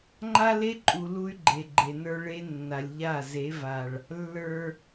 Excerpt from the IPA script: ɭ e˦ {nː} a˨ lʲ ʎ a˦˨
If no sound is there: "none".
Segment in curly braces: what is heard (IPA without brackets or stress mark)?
nː